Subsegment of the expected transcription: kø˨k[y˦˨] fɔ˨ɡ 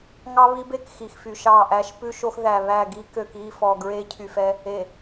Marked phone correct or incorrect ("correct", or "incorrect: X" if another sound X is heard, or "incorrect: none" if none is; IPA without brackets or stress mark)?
incorrect: i˦˨